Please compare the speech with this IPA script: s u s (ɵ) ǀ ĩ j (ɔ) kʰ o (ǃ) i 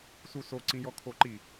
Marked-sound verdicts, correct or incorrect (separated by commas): incorrect, correct, correct